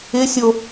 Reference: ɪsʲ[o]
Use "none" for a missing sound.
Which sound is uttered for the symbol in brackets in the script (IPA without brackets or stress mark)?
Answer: o